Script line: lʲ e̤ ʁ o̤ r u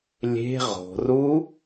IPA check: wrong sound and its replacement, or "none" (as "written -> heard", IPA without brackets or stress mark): none